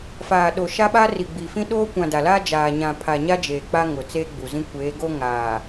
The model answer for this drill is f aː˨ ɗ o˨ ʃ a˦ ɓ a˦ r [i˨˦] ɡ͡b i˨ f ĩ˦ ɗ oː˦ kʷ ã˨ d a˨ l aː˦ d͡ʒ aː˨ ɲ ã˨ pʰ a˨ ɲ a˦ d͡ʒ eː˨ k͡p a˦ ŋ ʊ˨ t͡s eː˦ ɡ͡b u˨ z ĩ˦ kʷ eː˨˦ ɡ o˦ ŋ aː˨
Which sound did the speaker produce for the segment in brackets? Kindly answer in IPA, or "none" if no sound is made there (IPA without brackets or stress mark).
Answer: i˨